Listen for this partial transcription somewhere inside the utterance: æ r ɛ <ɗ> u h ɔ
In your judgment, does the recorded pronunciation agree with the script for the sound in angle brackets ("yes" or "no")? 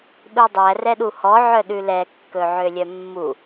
yes